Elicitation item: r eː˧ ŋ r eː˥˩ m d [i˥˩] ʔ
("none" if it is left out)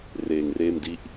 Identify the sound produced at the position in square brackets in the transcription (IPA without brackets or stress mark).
i˥˩